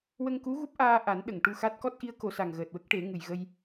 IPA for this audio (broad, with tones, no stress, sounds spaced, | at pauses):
w ə˧ ŋ k u˧˥ ɣ u˦˥ p̚ ʔ aː˧ ʔ a˨˩˦ n ɗ ə˨˩˨ ŋ ʈ u˧ x a˦˥ t̚ k ɔ˦˥ t̚ ʔ i˧˥ ə̯ k o˨˩˦ s a˨˩ ŋ ɣ əː˨˩ t̚ w ə˦˥ k̚ ʈ e˨˩˦ ŋ ɨ˨˩ j ɣ ə˧ j